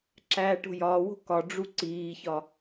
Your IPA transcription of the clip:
ǁ æː ʈ o̤ j ɒː w o̤ k ɒ ɖ͡ʐ u ǀ iː ç ɒ

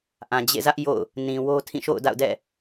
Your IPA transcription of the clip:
ʔ ã˨ d͡ʑ ḛ˦˨ z ä˦ ʔ j o̰˦˨ ʊ̯ | n ĩ˨ w o˦ tʰ ĩ˦˨ ʃ o̰˦˨ ʊ̯ d a̰˦˨ ʊ̯ d ɛ̰˦˨

